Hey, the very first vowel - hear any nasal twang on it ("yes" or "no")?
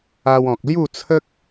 no